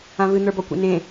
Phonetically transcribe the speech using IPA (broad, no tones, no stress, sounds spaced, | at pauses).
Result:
ã v ɨ n̪ ə˞ b ɔ kʷ ḛ n ẽ